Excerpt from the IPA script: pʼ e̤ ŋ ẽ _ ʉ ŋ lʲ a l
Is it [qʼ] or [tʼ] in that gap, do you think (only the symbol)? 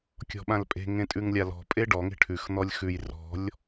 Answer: tʼ